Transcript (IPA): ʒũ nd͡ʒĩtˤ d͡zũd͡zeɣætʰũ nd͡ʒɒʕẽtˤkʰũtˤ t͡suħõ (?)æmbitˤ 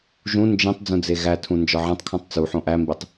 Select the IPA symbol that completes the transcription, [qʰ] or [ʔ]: ʔ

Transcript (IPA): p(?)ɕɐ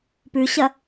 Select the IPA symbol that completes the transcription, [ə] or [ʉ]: ʉ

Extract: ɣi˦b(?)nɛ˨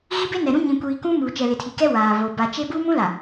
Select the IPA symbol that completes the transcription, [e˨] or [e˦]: e˦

